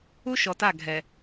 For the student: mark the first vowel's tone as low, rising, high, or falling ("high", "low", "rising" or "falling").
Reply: high